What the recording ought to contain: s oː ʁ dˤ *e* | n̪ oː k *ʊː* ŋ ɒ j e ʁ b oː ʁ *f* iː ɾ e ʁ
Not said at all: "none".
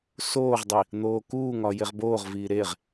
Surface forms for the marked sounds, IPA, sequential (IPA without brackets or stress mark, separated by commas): i, uː, v